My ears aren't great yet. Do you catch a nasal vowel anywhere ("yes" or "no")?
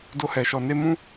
yes